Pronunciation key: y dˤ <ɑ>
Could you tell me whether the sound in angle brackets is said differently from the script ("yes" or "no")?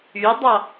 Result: no